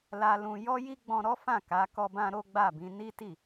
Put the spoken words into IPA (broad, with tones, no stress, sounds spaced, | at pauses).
l a˧ l ũ˧ j ɔ˦ j i˦ ɡ͡b ɔ̃˧ ɾ ɔ˦ f ã˦˨ k a˨˦ k ɔ˧ b ã˧ ɾ o˦ ɡ͡b a˦˨ b ĩ˨˦ n i˦ t i˦˨